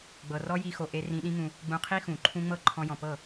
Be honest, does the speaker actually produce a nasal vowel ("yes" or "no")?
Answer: yes